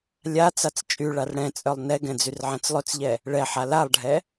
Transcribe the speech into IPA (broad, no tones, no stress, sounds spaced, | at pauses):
lʲ a t͡s a t͡s t͡ʃʼ y ɭ a r ɽ ɛ̃ t͡sʼ œ lˠ n ɛ ɡ ɛ̃ d͡z y r ʕ ɛ̃ t͡s lˠ ø t͡s ʎ ɛ | ɭ ɛ ħ a l a lˠ ɖʱ ɛ